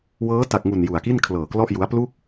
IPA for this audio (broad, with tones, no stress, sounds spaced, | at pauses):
w ɤː˦˥ t a˨˩ k̚ ŋ u˨˩ n j u˨˩ a̯ k i˥˩ n kʰ l ɤː˨˩ k l ɔ˥˩ ʔ j u˦˥ a̯ p l u˥˩ k̚